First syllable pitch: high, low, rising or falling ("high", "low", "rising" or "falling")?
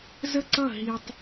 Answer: falling